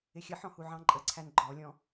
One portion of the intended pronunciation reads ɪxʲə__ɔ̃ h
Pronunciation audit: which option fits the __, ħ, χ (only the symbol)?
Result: ħ